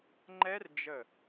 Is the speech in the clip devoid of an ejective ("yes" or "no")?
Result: yes